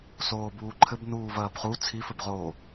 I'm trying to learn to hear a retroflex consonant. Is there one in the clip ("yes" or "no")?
no